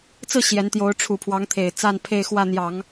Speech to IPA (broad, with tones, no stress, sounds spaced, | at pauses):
t͡s ɹ̩˥˩ ɕ j ɛ˧˥ n t̪ j o˧˥ ʊ̯ ʈ͡ʂʰ u˨˩ pʰ w ɑ˧˥ ŋ t̪ʰ e˨˩ ɪ̯ t͡s a˥˧ n pʰ e˥˧ ɪ̯ x w ä˥˩ n̪ j ɑ˨˩˦ ŋ